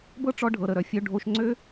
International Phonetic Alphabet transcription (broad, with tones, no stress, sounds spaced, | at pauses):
b ɤ˥ ʈ͡ʂ ɔ˧ ɖʱ ɤ˩ ɾ ə˩ ɾ œ˩ fʲ œ˧ ɖʱ o˧ ʃ ŋ͡ǀ ø˥